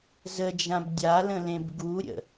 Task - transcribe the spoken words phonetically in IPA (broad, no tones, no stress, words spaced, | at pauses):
zəd͡ʒãb dʲalə̃lẽb ɡuɾʲə̰